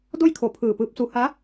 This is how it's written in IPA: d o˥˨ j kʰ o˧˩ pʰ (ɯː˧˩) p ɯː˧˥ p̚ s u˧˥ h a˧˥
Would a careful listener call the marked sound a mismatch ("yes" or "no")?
no